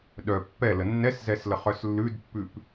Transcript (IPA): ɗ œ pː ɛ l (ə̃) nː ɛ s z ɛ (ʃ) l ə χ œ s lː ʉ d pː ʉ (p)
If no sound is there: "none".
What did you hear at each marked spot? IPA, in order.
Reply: ə, s, p

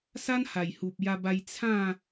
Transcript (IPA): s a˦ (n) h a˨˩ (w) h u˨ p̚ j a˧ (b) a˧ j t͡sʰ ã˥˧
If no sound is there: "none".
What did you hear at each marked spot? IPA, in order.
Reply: n, j, b

